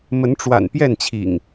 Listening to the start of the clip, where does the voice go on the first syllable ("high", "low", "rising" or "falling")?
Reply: rising